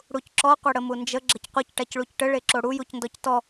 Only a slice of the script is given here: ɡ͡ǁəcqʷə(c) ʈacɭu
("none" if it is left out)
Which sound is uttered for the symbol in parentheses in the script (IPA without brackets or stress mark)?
c